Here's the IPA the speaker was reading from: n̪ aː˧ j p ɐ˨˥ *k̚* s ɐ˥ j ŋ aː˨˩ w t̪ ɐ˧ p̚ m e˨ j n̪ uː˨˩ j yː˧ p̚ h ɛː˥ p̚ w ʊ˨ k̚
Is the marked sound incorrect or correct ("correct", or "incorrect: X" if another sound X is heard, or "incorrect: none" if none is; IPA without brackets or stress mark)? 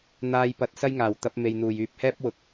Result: incorrect: t̚